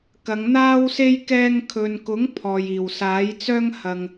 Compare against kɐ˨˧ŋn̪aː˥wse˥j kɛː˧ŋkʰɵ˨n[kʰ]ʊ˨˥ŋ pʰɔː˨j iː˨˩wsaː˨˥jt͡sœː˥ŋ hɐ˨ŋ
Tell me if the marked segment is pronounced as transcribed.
no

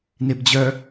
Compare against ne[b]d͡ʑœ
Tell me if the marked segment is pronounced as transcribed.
yes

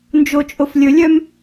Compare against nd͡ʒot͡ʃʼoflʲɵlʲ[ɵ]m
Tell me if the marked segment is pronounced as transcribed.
no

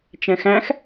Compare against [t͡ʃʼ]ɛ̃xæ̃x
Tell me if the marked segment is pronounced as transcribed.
no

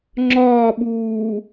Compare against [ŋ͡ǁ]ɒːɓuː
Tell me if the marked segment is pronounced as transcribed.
yes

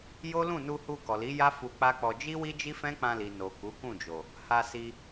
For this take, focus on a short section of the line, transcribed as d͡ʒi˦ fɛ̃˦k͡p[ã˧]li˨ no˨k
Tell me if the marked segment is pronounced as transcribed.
yes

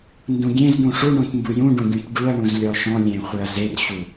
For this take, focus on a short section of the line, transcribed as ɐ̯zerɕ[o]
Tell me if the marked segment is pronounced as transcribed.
no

